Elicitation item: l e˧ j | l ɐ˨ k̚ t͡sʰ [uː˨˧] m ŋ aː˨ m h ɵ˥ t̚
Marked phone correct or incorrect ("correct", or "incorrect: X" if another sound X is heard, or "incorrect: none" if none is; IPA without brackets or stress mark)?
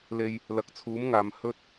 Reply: incorrect: uː˨˥